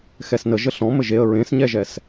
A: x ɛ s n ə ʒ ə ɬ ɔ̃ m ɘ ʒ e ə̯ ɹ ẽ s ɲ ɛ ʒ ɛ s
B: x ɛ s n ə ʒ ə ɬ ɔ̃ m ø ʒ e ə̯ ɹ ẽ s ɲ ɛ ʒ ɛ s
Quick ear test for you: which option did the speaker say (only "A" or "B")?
A